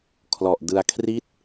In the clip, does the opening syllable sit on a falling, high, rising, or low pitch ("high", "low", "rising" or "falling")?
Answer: low